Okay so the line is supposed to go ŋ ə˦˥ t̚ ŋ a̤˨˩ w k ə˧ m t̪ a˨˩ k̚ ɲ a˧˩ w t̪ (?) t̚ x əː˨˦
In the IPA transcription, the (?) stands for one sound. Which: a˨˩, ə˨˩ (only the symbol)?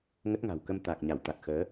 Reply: a˨˩